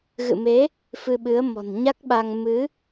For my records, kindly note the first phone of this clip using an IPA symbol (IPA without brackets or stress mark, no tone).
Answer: ɣ